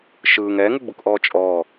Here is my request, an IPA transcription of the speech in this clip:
ʃ ɯː ŋ ɛː ŋ u ɡ͡b u k ʔ ɔː t͡ʃʼ ɔː

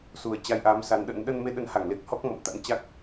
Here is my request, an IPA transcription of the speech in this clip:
s u˨˩ ə̯ t͡ɕ a˧ j ʔ aː˨˦ m s a˨˦ n ɗ ə̰˧˥ n ɗ ə˧ n m e˧ ɗ ə˨˦ n h a˧˩ ŋ l e˦˥ k̚ h ɔ˦˥ k̚ m ɔ̰˧˨ m t̪ a̰˧˥ n t͡ɕ a˦˥ k̚

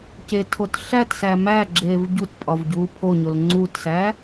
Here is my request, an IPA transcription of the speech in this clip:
c e tʰ o t ɬ æ t s æ m æ ɡ͡ǁ eː v ɟ u t pʼ ɒ v ɟ uː pʰ o ɲ o l ŋ͡ǀ uː t s æː

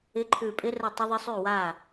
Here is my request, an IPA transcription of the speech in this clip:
ɪ˧˥˧ ǃʰ ʉ˧˩ pʼ ɪ˦˥ r ə˥˩ tˤ ə˦˥ ðˤ ɪ˦˥ sˤ ʉ˥˩ w a˥˩

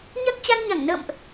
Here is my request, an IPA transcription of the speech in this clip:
ɲ a˦˥ k̚ t͡ɕ a˧ n ɲ a˧˩ ŋ n ə̰ː˧˨ m ʔ

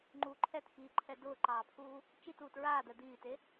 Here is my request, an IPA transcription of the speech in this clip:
ŋ͡ǃ u ǃʰ ɛ t x iː ǃʰ ɛ d ʊː ǃ ɑː pʰ uː | t͡ʃ i t uː t ɹ aː d̪ ɛ d̪ iː t e

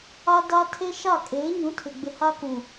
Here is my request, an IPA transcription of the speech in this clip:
a˦ d a˦ tʰ e˦ ʃ a˦˨ kʼ eː˨˦ ɲ ũ˨˦ tʰ ɪ˨ ɡ͡b ɪ˨ h a˦ k ũ˨

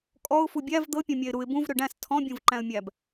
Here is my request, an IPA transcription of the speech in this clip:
kʼ ɔ ʊ̯ f u bʲ æ v d̪ ɤ pʲ ɔ̃ mʲ æ ɪ̯ ɾ u ɪ̯ b ũ v ɾ ø ɖ æ̃ s tʰ ɔ̃ bʲ õ v ǃ æ̃ ə̯ mʲ æ b

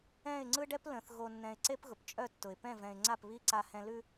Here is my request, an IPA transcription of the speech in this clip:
ɛ̃˦˨ ɪ̯ ŋ͡ǀ ɯ˦ ɖ ɛ˦ p l ə̃˨ θ ɣ o˨ nː ɛ̃˨ ɪ̯ ǀ e˦ p ɣ ʊ˨ p t͡ʃʼ œ˦˨ tː ʊ˨ ɪ̯ p ɛ̃˦˨ v ɛ̃˨ ɪ̯ ŋ͡ǀ a˦˨ p β i˦ ǀ a˨ h ɛ̃˨ l ʉ˨

